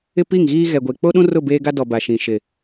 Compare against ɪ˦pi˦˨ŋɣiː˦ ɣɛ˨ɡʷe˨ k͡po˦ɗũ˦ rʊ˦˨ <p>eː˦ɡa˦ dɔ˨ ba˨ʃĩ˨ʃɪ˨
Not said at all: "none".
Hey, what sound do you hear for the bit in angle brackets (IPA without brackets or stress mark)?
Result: b